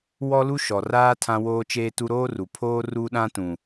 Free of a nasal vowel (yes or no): no